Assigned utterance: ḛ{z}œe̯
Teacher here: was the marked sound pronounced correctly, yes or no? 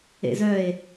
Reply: yes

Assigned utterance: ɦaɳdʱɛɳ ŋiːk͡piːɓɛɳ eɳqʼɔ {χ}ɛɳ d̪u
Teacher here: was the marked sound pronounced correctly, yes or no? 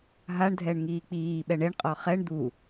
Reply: yes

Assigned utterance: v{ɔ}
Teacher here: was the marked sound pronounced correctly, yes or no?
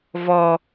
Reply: yes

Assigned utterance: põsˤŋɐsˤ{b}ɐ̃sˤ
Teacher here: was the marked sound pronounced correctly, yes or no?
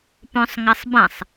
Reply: yes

